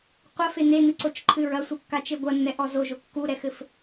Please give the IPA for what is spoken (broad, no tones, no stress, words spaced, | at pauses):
qʷɐfe n̪en̪ɨǀot͡ʃǃʰɨ ɹɐsʷɨkːat͡ʃe ɡʷɐnːɛʔɔ zoʒo kːuɾɛxɘf